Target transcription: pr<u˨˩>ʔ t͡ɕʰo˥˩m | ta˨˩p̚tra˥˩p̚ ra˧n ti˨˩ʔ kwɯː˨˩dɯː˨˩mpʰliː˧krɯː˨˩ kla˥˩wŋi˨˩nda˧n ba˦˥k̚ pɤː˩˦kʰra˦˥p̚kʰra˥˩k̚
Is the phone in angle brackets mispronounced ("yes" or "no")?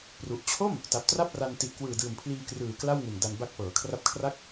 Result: no